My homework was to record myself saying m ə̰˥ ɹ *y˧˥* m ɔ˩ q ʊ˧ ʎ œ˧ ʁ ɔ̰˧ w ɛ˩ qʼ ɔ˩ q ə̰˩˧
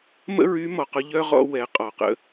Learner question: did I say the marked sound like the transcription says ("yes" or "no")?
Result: yes